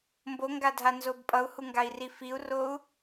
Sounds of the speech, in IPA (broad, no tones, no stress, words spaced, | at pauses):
mboŋɡadʱanzob pʼʌu̯huŋɡai̯ri fiu̯rou̯